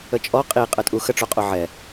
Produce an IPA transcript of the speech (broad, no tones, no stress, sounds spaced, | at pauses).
ə t͡ʃʼ ɔ qʼ i qʼ ə tʼ u x ə ʈ͡ʂ o qʼ o ʕ ɛ